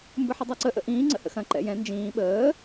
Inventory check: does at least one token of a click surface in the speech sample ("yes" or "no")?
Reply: yes